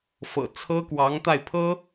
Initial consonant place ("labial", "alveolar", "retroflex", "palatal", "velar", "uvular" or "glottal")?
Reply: labial